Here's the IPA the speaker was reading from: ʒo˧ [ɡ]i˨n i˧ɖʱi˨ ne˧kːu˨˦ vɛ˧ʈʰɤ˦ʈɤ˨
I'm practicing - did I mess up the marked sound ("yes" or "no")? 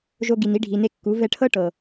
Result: no